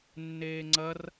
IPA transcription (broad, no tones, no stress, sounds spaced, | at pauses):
nː eː ŋ͡ǀ ɐ r